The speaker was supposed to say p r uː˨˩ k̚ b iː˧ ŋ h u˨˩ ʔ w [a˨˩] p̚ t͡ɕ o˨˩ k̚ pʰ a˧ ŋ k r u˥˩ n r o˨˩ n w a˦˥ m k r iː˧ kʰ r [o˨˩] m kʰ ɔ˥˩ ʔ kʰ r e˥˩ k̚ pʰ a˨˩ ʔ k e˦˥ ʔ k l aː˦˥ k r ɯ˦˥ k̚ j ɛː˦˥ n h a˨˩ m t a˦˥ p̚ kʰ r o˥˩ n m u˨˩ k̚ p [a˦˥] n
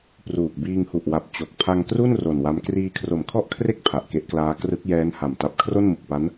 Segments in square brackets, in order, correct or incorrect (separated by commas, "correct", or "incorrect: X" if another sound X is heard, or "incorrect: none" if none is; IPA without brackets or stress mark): correct, correct, correct